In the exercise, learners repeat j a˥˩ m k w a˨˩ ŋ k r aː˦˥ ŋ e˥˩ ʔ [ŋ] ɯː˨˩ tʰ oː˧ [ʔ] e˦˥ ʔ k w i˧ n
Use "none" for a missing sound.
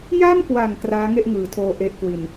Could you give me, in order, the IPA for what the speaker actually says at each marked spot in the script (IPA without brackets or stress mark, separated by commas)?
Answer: ŋ, ʔ